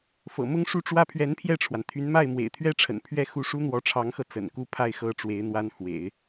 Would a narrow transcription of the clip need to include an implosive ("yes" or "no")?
no